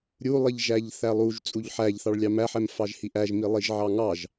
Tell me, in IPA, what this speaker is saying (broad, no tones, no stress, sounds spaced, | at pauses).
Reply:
ɾʲ u lˠ i ʎ ʒ æ ʎ θ æ lˠ u ʒ t͡sʼ u ʎ ħ æ ʎ θ ɑ ɭ lʲ ɑ m æ ħ ɛ m f ɑ ʒ h i ʔ æ ʒ m i lˠ i ʒ ʕ ɑ ŋ ɑ ʒ